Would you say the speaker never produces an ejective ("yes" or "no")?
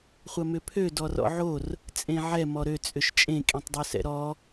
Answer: no